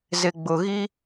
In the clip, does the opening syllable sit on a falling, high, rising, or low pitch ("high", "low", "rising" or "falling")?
low